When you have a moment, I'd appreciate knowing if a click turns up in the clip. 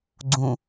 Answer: yes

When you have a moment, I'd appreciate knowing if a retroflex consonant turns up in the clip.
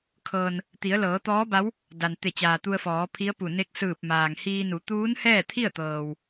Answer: no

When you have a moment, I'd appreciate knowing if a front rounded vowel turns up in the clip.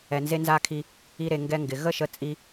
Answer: no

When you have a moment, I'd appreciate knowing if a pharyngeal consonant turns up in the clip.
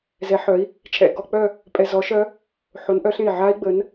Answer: yes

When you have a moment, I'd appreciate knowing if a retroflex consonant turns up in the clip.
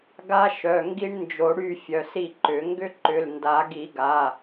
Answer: yes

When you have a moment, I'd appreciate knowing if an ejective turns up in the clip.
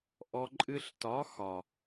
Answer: yes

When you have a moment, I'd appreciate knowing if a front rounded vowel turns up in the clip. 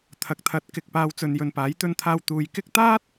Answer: no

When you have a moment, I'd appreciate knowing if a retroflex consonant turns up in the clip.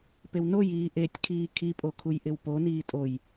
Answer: no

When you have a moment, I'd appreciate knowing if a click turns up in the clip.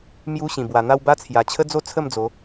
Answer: no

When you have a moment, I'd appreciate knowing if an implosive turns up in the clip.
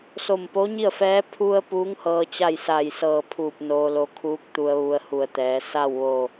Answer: no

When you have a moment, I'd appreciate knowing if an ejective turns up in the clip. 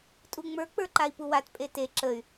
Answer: yes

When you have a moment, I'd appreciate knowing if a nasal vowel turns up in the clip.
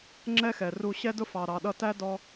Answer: no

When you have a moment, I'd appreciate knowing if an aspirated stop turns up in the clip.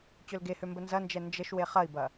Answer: no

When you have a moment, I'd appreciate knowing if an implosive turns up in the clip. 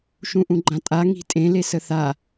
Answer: no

